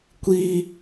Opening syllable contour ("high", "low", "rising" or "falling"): high